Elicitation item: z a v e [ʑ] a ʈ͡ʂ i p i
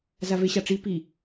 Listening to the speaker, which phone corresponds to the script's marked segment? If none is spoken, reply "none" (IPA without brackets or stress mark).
ɕ